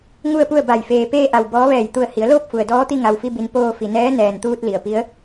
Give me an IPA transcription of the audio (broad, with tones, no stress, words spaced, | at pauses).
ŋu˥˨ə̯pu˥˨ə̯ba˧˩j feː˩peː˧ʔa˩w bɔː˧˥ʋɛː˧˩j t̪u˧˩ə̯hi˩˧ə̯ loː˥˨p̚fu˩ə̯dɔː˧˥t̪i˧ ŋa˩wfi˧bi˩n poː˧ fi˩nɛː˧˥nɛː˩nt̪uː˧t̚ li˩ə̯pi˧˥ə̯